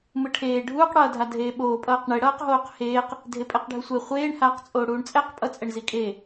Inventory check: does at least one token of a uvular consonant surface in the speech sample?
yes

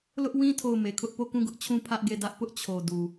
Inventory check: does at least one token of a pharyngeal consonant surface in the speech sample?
no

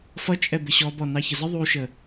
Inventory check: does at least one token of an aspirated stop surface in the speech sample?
no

